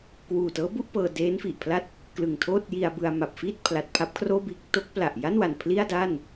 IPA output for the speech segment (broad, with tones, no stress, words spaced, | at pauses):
kwuː˨˩tɤː˦˥bu˥˩ʔ pɤː˧deː˦˥nfi˨˩ʔpʰla˥˩t̚ | klɯ˨˩ŋtʰoː˥˩t̚ji˧a̯bɯ˧a̯ ma˨˩p̚fiː˥˩t̚ pʰla˨˩t̚ pʰa˦˥p̚kʰroː˥˩biː˥˩k̚ to˦˥k̚ pla˨˩ʔja˥˩nwa˨˩n pʰli˥˩a̯da˥˩n